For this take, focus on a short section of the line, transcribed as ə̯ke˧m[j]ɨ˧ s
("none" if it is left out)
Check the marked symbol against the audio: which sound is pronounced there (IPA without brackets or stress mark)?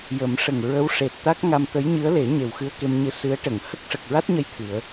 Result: ɲ